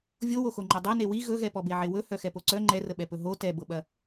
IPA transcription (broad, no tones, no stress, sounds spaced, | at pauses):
vʲ o w o x o ŋ͡ǃ ɐ dˤ ɐ n e w i ɣ ɵ ɣ ɛ p ɔ b e ʕ e w ɵ h œ x ɛ p o ǀ œ ŋ͡ǃ ɛ r ə ɓ ɛ p ɵ ɦ o t ɛ b ɤ ɓ ɐ